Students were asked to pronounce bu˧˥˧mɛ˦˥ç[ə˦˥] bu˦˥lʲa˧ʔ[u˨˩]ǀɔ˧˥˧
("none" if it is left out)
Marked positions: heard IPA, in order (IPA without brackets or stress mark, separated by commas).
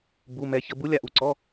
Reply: ə˦˥, u˧˩˧